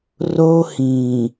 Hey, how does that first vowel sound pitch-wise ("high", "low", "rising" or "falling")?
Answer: high